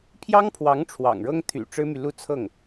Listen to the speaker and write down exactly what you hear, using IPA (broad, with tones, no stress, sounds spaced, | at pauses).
pʰ j ɑ˥ ŋ pʰ w ɑ˧˥ ŋ ʈ͡ʂʰ w ɑ̰˨˩ ŋ ɻ ɤ˥ ŋ t̪ʰ y̰˨˩ ʈ͡ʂ ɻ̩˥ m y˨ l u˥˧ t͡sʰ ɤ˥˩ ŋ